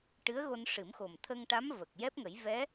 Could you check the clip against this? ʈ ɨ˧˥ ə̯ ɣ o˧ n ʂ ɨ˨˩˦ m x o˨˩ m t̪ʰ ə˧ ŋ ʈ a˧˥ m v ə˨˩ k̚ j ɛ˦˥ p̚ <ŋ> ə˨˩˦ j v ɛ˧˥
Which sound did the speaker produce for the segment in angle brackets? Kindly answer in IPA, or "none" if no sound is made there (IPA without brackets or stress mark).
ŋ